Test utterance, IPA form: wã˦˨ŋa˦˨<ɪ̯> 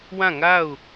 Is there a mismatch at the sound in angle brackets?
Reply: yes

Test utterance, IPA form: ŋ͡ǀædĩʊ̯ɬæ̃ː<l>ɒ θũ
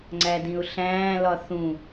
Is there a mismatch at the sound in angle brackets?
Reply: no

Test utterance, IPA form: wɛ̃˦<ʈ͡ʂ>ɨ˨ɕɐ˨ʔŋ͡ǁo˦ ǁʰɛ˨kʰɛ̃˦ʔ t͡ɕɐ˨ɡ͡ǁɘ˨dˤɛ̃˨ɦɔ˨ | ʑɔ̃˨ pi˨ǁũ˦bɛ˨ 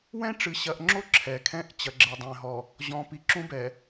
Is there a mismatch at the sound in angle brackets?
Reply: no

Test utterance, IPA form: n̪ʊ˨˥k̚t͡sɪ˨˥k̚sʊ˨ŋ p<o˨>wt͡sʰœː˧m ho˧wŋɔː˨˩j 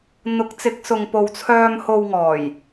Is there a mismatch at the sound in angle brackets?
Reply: no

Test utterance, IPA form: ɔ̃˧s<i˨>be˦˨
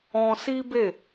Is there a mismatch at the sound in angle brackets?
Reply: yes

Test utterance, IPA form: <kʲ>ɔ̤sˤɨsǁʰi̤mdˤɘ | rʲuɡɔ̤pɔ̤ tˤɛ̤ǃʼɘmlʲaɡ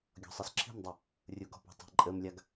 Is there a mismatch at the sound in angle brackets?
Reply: yes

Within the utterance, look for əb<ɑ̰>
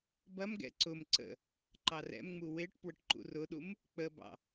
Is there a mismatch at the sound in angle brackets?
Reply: no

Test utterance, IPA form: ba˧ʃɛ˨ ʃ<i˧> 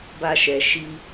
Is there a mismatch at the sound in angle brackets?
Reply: no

